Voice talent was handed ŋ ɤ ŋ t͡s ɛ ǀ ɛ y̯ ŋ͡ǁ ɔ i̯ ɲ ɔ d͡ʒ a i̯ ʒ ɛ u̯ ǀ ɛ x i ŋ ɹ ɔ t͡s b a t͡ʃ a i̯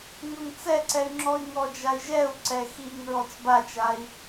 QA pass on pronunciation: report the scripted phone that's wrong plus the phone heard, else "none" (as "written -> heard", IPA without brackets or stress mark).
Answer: ɲ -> ŋ